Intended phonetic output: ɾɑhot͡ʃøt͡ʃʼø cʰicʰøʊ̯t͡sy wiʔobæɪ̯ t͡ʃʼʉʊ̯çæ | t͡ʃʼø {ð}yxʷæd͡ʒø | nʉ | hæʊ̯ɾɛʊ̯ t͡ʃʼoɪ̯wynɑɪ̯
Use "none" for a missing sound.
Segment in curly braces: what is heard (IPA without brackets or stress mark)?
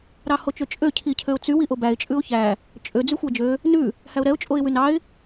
d͡z